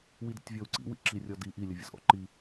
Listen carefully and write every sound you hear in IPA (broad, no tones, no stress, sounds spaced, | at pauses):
w i d ə̰ tʲ vʲ ɔ u̯ ǀ ḭ w ḭ ǁ i rʲ ɔ d i ʔ i lʲ ə vʲ ə̰ z ʔ ɔ̰ ǃ i